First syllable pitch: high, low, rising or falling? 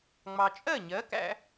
low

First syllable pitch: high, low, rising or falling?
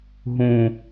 low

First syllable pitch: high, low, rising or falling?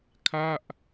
falling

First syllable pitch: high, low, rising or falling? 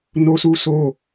high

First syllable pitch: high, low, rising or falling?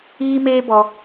high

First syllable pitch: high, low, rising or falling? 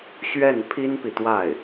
falling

